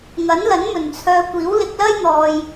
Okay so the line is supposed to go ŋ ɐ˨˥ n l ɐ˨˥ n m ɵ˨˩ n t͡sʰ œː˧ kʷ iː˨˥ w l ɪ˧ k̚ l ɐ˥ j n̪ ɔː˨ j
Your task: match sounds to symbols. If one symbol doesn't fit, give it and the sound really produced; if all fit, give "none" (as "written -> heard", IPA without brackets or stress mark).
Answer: none